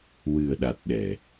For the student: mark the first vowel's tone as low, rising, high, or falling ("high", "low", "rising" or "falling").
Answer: low